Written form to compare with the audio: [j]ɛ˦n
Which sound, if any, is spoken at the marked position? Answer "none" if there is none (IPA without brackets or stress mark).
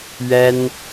ɥ